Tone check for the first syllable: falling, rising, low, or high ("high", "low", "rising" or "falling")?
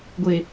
low